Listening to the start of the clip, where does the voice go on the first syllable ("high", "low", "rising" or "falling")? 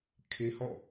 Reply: high